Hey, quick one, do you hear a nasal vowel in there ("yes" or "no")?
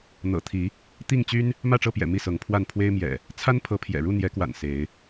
no